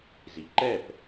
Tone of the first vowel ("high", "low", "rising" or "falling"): low